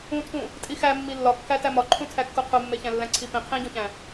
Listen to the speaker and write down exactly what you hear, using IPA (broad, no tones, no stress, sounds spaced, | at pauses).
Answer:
ũ tʰ ũ | tʼ i x æ mː i lː ɒ kː æ t æ m ɒ ǃʰ ũ tʰ æ kː u qʰ u mː e ç æ̃ lː æ̃ ǀʰ i p ĩ qʰ ĩ ɟ õ ç æ̃